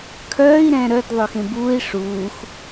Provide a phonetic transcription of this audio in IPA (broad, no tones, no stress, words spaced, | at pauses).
kʰœːi̯ɾɛ̃ ɾœdðˤʉ xẽbuːi̯ ʂuːx